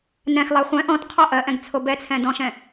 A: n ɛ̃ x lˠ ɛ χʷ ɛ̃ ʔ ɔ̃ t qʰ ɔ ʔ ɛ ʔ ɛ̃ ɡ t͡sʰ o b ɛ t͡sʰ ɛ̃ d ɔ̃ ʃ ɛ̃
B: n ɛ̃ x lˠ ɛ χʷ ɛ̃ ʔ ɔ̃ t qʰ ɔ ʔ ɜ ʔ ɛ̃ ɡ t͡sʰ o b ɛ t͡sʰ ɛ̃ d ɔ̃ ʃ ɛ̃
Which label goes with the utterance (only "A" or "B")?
B